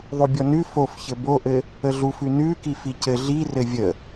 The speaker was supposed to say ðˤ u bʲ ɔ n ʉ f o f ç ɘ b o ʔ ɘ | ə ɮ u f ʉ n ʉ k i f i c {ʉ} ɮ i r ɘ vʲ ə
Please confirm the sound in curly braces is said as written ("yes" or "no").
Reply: no